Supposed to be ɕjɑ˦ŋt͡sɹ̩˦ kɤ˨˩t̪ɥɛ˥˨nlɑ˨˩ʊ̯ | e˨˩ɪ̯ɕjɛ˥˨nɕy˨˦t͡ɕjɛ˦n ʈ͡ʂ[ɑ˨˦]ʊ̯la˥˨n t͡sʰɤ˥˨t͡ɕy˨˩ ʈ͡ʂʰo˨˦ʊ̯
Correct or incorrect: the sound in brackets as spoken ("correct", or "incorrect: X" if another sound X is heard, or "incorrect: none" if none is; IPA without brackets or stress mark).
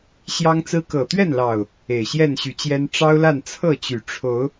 incorrect: ɑ˦